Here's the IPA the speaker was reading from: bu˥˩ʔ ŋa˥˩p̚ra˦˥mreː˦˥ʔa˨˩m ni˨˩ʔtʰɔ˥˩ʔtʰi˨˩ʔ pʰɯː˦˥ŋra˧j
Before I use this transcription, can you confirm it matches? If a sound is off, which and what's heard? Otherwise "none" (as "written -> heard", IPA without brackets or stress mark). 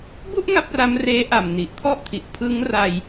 none